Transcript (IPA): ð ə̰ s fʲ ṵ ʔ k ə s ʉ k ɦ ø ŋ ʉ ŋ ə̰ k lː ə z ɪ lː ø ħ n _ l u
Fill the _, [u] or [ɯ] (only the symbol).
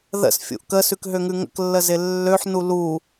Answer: u